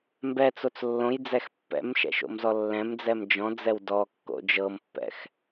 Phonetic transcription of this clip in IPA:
m b ɛ t͡s o t͡s lː õ j d͡z ɛ x pː ɛ̰ m ʃ ɛ̰ ʃ o̰ m z ɔ lː ɛ̃ m d͡z ɛ m d͡ʒ ɔ̃ d͡z ɛ w d ɔ kː o̰ d͡ʒ ɤ m pː ɛ̰ x

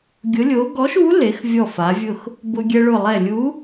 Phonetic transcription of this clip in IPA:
ɡʲ ʊ˨˥ lʲ o˨˥ ɡ ɔ˨˥ ʃ u˨˥ l e˩˧ x vʲ ɔ˧˩ f a˩˧ vʲ ʊ˧˩ x | b ʊ˧ ɡʲ ɛ˧ ɭ ʊ˧˩ lˠ ɛ˧˩ lʲ u˨˥

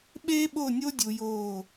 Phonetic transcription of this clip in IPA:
ɓ eː˦ ɓ o˦˨ nʲ o˦ dʲ u˨ j o˦˨

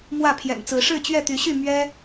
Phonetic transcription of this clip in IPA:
m w ä˥˨ pʰ j ɛ̰˨˩ n t͡s ɹ̩˨˦ ʂ ɻ̩˥˨ t͡ɕ ɥ ɛ˥˨ t̪ y˨˦ ɕ y˥˨ m ɥ ɛ˦

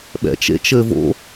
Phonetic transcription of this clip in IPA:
ɓ ɛ̰ t͡ʃ ḛ t͡ʃ ɘː v o̰

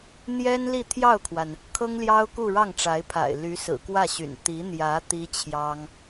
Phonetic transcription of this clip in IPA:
n̪ j ɛ˥ n l i˥˧ t̪ʰ j ɑ˥˩ ʊ̯ kʰ w a˩ n | kʰ ɤ˥ ŋ l j ɑ˥ ʊ̯ k u˥˧ ɻ ɑ˥˩ ŋ ʈ͡ʂ a˧˥ ɪ̯ pʰ a̰˨˩ ɪ̯ l y˧˥ s ɹ̩˨˩ k w ä˥˩ ɕ y̰˨˩ n t̪ i˧˥ n̪ j ä˧˥ t̪ i˥ t͡ɕʰ j ɑ˥ ŋ

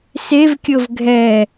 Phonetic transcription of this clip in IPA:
s e v kʲ ɤ v ɡʱ ɛ

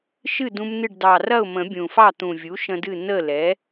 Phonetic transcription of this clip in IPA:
ʃ ɨ˥˨ d ũ˦ m n ɨ˥˨ ɖ d ɑ˨˩ r ɐ˥˨ ʊ̯ m ə̃˨˩˦ bʲ ũ˨˩ f ɑ˥˨ t̪ ũ˨˩ vʲ u˩˥ ʃ ə̃˦ d ɨ˥˨ n ə˥˨ l ɛ˩˥

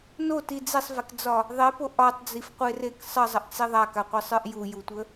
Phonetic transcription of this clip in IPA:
n o t i d͡z e sˤ v e k d͡z ɒ | ðˤ e p o ʔ ɒ tˤ d͡z i f qʷ e r e k sˤ ə zˤ ə ʔ t͡s i ðˤ a k a qʷ ə˞ sˤ ə˞ ʔ j u j u tʷ ə

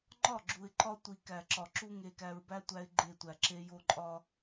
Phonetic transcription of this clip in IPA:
ŋ͡ǃ ɒ˦˨ ɡ͡ǁ u˨ ɪ̯ ǃ ɒ˦ tʷ i˨ k æ˨ ǁ ɒ˨ ǁ u˦ ŋ e˨ k æ˨ ɹ b æ˦ tʷ æ˦ ɪ̯ ɡ͡ǃ e˦˨ tʷ æ˨ ǁ e˦ j o˦ ǃʼ ɒ˦

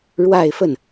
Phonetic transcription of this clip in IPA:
ɻ w a˥˧ ɪ̯ f ə˥˩ n

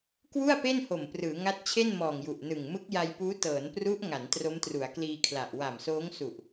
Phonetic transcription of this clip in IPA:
k w u˥˩ a̯ p e˥˩ n h o˨˩ m p r ɯː˩˦ ŋ a˦˥ t̚ t͡ɕʰ e˥˩ n m ɔː˨˩ ŋ j u˨˩ ʔ n ɯ˨˩ ŋ m ɯ˦˥ k̚ j a˧ j p uː˦˥ t ɤː˩˦ n p r u˦˥ ʔ ŋ a˩˦ n t r o˦˥ m t r u˩˦ a̯ k l iː˧ kʰ l a˨˩ ʔ w a˨˩ m s oː˦˥ ŋ s u˨˩ ʔ

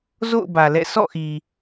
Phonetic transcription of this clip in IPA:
z o̰˦˨ ʊ̯ b ä˨ l ɛ̰˦˨ sʰ ɔ̰˦˨ ʔ i˨

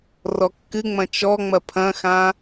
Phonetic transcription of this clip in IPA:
r ɔ kː ɨ ŋ͡m ɐ̃ t͡ʃ ɔ ŋ͡m ɐ pʰ ɐ̃ x ã

